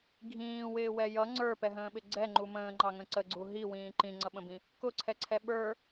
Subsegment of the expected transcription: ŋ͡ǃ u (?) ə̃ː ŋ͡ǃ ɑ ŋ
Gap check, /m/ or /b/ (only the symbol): m